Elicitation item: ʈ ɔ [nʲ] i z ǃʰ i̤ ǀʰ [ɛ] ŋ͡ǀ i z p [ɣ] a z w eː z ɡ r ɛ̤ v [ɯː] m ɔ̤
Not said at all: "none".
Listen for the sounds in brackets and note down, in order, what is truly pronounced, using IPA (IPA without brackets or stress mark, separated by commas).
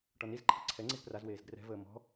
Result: n, ɛ, r, əː